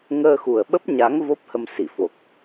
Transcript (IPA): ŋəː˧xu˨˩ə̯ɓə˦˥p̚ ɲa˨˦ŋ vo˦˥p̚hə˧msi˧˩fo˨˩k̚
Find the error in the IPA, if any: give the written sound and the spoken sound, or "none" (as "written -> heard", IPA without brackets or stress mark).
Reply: none